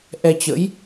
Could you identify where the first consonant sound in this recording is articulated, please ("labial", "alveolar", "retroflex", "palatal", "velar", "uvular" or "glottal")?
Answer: glottal